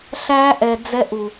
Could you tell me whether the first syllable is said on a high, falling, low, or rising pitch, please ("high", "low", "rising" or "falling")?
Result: high